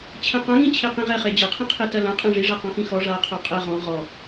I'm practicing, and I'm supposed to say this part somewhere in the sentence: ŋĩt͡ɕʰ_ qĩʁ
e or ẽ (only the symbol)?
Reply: e